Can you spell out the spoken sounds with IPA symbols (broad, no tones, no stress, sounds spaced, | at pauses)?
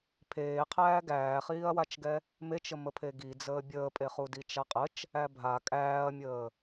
pʰ eː qʰ æː ɡ æː χ iː ɐ̯ w a t͡ʃ ɡ ɛ | m e t͡ʃ ə m ə pʰ e ɡ i d͡z əː bʲ əː pʼ e χ u d i t͡ʃ a qʼ ə t͡ʃ | æ bʱ a kʼ æː ɐ̯ mʲ əː